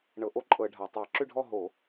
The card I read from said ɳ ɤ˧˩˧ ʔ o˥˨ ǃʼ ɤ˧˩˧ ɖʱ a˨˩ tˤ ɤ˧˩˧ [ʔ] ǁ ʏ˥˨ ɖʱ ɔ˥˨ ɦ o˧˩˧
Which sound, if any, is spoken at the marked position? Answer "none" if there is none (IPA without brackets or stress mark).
none